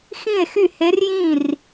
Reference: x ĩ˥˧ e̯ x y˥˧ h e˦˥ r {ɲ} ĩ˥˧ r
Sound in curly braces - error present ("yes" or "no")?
yes